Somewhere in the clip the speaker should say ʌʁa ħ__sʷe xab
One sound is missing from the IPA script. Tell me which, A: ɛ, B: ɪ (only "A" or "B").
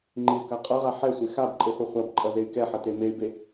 A